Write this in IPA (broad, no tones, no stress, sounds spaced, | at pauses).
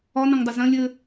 ɒ n ɐ̃ ŋ dˤ ə z ɐ̃ lʲ ɘ